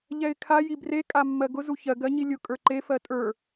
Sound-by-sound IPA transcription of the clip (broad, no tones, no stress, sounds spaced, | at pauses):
ʎ ɛ ɪ̯ kʰ a j i b r e kʼ a mː ɜ ɡ ʊ z u ç ɜ ɡ ɜ ɲ i lʲ ʊ kʼ ə˞ ǃ e f ɜ tʼ ə˞